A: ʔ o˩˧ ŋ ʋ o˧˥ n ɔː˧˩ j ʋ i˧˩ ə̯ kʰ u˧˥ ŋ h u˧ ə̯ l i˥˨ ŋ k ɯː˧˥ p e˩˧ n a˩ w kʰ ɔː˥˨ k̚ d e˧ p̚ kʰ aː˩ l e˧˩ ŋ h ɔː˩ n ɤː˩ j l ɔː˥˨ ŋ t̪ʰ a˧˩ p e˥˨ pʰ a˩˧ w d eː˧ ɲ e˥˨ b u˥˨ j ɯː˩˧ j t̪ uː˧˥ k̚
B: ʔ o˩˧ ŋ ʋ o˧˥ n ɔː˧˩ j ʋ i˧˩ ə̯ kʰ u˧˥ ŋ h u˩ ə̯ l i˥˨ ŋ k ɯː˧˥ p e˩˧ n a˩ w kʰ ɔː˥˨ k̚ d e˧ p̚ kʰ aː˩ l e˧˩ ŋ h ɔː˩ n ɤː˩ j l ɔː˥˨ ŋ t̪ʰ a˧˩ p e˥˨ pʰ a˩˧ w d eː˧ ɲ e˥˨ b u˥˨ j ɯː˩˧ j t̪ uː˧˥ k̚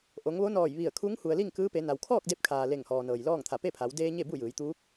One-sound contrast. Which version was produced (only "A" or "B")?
B